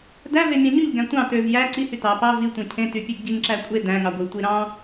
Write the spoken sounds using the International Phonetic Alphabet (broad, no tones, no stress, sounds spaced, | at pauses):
d æ v e mʲ ɑ̃ ɲ y ʎ ɡ æ̃ tʷ ɑ̃ t ø v j æ ǀ i h y t ɑ p ɑ v i tʷ æ̃ cʰ ẽ t y pʲ e ɡ ɟ i ŋ ǁ æ kʷʼ e d æ̃ ŋ ɑ ɡʷ i tʷ i ɾ ɑ̃